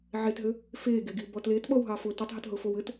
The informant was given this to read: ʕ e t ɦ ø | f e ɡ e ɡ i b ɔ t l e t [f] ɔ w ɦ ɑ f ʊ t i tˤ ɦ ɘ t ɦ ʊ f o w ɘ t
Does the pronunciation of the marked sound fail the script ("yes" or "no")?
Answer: yes